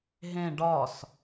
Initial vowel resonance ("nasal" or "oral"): nasal